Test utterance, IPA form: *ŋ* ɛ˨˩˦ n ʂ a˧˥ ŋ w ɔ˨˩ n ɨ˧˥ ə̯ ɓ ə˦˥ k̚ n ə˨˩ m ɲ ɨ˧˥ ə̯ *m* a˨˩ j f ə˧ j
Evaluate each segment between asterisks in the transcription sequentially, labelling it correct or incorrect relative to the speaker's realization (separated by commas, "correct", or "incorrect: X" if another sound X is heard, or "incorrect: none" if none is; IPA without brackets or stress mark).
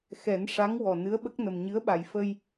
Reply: incorrect: x, incorrect: ɓ